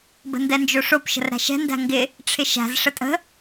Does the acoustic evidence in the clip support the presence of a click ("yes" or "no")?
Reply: no